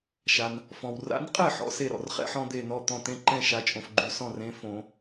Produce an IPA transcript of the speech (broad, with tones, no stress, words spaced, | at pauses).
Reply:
ʃa˩n | fɔ̃˩wra̰˨˥nqʼɛ˥˩ ħɔ̰˨˩˦se˥˩ ɾɔ̰˩rχɛ̰˦ħɔ̃˦ d̪e˥˩nɔ˥˩t̪ɔ̃˥˩ t̪ẽ˦ǃɛ̃˥˩ ʃa˨˥t͡ʃʼõ˩fɡ͡ǃy˨˩˦ sɔ̃˥˩rẽ˨˥ fõ˨˩˦